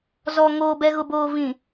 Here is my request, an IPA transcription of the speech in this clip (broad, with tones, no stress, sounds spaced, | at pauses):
z ɔ˨ ŋ oː˨ b ɛ˨ ɣ ʊ˨ b oː˨ v ĩ˨